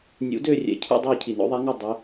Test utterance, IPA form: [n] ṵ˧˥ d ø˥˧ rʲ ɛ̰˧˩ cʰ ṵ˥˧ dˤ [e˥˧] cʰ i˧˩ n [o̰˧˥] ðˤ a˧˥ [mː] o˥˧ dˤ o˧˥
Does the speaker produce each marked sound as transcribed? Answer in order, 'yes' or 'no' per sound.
no, yes, yes, no

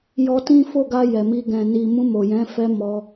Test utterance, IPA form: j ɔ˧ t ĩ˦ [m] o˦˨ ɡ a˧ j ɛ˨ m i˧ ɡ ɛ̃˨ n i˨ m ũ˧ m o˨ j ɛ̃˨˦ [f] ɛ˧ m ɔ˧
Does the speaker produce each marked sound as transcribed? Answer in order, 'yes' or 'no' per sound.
no, yes

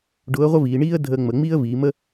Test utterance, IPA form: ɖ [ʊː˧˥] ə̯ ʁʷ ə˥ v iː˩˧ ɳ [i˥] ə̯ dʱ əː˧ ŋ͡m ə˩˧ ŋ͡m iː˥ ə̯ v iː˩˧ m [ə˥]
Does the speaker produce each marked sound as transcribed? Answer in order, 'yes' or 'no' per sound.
yes, no, yes

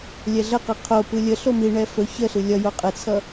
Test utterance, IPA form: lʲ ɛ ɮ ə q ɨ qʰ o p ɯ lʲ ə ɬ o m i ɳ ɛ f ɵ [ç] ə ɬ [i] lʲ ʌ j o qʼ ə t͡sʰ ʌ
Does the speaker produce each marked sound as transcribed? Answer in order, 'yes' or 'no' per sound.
yes, no

